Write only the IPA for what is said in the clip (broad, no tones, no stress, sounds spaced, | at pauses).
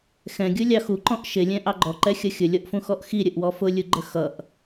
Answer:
x ɛ̃ ɡʲ u lʲ ɑ x u ǃ ɔ̃ ʔ ʃ ɪ lʲ ɛ̃ ʔ ɑ ɡ͡ǃ ɔ ǃ ɛ xʲ ʌ xʲ ʊ lʲ ɔ ʔ f ũ x ɔ ʔ x i ɾʲ ə ʔ w ɔ f ʊ lʲ u ɡ͡ǃ ə x ʌ ʔ